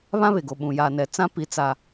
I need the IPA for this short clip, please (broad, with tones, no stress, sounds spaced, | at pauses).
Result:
β ã˦ β e˨ ɡ o˨ ɓ ũ˨ j aː˨ n ɛ˨ t͡s ã˦ p i˦ t͡s a˦